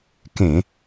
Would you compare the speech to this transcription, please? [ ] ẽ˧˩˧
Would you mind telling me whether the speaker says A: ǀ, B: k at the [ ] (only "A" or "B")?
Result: B